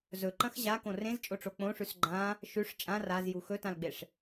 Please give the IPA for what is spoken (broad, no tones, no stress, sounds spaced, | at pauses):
z ɵ ǃ ɐ̃ x ʑ a k õ r ẽ z t͡ʃʼ o ʈ͡ʂ o k͡p õ ʂ ʉ s ɡ͡ǃ ã | ʃ ʉ ʂ t͡ʃʼ ã r a z j u x ɵ t ã l ɡ͡b e ʂ